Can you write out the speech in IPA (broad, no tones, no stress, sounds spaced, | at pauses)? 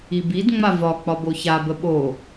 i b i d ŋ͡m a v ɒ k͡p ɒ b o ç a b ə ɓ o